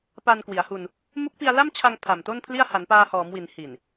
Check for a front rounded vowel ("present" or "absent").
absent